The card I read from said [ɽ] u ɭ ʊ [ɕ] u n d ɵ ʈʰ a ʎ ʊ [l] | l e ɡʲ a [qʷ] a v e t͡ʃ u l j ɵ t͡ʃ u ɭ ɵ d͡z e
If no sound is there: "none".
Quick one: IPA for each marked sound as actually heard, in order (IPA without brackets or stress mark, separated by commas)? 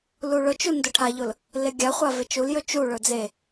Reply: l, t͡ʃ, l, χʷ